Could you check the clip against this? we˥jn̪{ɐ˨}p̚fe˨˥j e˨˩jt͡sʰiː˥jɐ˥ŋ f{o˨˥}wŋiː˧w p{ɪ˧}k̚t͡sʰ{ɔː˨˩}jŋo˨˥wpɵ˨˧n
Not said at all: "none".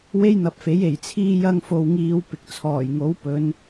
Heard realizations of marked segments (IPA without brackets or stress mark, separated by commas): ɐ˨, o˧, ɪ˨, ɔː˨˩